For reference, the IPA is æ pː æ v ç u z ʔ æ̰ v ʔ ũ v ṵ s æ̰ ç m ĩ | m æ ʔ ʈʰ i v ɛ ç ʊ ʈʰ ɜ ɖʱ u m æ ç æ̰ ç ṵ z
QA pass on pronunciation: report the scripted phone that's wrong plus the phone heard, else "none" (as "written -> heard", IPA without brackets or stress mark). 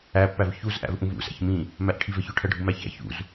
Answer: none